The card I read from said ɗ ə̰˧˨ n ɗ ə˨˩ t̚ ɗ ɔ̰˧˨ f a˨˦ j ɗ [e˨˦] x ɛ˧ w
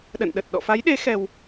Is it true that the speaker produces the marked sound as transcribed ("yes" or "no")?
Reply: yes